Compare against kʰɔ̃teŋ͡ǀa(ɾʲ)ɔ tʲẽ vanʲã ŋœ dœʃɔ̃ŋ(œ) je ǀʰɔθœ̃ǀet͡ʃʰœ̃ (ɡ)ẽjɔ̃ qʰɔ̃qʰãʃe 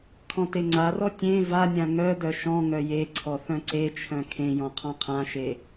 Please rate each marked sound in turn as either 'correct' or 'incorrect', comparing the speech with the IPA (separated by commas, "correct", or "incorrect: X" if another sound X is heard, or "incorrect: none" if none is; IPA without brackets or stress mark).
incorrect: r, correct, incorrect: kʰ